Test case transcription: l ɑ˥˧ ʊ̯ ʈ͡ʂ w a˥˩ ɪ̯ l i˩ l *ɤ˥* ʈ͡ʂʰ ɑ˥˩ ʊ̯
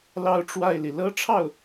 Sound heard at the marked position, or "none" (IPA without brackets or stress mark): ɤ˥